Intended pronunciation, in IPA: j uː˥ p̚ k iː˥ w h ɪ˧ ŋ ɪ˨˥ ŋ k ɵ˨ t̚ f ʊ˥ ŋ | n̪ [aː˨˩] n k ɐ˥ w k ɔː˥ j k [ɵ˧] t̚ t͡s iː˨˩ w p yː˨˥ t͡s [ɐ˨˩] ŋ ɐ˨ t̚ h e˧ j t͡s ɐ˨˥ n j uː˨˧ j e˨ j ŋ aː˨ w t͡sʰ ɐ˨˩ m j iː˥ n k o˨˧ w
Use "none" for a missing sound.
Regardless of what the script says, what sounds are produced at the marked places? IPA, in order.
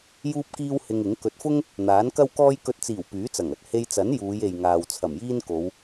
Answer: aː˨˥, ɵ˧, ɐ˨˩

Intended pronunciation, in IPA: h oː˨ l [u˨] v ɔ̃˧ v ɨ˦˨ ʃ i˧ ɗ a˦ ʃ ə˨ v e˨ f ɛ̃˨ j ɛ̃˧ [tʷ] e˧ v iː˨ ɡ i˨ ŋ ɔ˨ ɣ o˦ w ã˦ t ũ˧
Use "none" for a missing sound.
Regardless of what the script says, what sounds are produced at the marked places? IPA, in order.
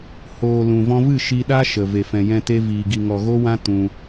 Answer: ũ˨, t

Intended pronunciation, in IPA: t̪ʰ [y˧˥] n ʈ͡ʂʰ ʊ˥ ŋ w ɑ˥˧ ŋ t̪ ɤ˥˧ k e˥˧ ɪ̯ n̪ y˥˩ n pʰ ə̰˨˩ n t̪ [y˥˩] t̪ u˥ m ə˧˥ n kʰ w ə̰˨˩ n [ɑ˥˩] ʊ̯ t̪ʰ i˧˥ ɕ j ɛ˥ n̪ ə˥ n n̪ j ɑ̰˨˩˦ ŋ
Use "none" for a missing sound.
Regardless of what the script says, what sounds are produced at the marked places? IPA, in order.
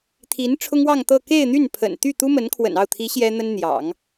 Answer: i˧˥, y˥˩, ɑ˥˩

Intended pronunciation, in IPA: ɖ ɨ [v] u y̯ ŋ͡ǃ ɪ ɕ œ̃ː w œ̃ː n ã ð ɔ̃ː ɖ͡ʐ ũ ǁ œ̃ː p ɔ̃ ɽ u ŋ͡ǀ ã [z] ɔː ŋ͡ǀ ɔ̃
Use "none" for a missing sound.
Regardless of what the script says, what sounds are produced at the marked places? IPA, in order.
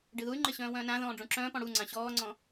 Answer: ð, ɕ

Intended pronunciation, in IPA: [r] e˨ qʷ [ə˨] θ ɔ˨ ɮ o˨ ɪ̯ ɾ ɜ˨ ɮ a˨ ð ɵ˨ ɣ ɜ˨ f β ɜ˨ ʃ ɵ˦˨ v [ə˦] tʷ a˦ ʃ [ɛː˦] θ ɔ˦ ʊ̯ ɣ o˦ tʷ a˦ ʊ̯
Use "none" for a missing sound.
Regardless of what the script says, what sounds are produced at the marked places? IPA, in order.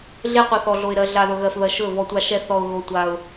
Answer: ɮ, ʌ˨, ɔ˦, ɛ˦

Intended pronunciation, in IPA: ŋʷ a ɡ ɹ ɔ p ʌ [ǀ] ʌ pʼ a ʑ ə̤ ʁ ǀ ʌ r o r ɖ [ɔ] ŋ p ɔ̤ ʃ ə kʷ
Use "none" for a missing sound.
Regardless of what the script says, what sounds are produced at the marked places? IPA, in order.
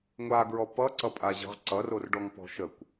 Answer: ǀ, ɔ

